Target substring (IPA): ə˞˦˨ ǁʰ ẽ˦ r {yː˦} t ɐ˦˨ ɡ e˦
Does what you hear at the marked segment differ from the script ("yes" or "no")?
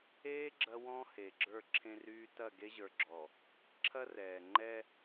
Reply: no